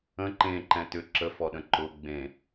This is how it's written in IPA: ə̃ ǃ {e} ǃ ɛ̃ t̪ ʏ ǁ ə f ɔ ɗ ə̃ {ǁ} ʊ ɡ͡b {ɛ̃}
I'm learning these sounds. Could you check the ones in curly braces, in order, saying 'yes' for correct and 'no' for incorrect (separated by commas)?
no, no, no